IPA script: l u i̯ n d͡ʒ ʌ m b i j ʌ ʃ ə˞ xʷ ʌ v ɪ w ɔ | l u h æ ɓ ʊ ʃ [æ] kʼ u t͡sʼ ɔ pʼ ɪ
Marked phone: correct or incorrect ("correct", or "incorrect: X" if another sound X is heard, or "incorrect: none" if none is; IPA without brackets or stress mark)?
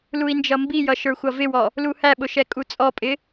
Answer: incorrect: ɛ